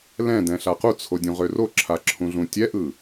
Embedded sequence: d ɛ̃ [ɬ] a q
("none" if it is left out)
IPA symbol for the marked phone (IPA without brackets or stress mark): ɬ